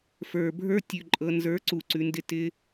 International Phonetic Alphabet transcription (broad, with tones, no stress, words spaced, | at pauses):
fə˞˨bʱə˞˧tʲʉ˨ ǃʼɤ˨nzə˞˨˦ǀu˨ ǀʉ˨ndɪ˧ tɪ˧